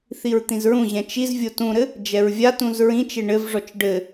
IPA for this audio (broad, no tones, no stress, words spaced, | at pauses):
θiɹt̪ĩzɹũʑɛ̃ t͡ʃiz vʲotũɾɘ | d͡ʒɛɹvʲatũz ɹĩt͡ʃe ɳɘvʐɔt͡ʃ ɖɘ